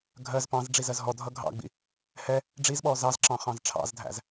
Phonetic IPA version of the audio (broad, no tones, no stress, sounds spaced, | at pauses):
ɡʱ ɜ z p ɑ̃ z ɖ͡ʐ i z ɜ z ɦ ɔ dʱ ʌ ɡʱ ɑ̰ ɡ͡b ḭ | h ɛ | ɖ͡ʐ i z ɓ ɔ z ɑ z ǁ ɑ̃ χ ɑ̃ z ʈ͡ʂʰ ɑ̰ z dʱ æ̰ z